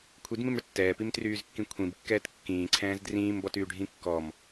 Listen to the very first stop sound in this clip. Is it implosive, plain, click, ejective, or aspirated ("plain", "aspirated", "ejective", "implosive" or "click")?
aspirated